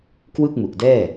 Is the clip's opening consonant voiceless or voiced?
voiceless